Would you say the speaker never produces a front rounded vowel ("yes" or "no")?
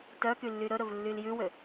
no